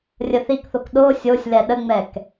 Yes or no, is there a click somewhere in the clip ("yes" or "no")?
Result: no